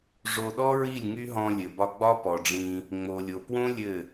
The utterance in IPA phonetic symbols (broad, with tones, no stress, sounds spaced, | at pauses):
ʐ o˧ ɗ ɔ˦ ɹ i˦˨ lʲ ŋ y˦ ɦ ɔ̃˧ lʲ ɘ˨ b ɒ˧ ɡ͡b ɒ˦ p ɔ˨ ɖ͡ʐ ĩ˧ | ŋ͡m o˨ lʲ o˨ p w õ˦ lʲ ɘ˦˨